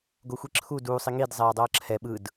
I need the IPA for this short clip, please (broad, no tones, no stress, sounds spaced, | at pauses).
ɡ o xʷ i ǁʰ u d uː sˤ i ŋ i d zˤ ɛː dˤ ʌː ǁʰ ɛ ɓ ɯ d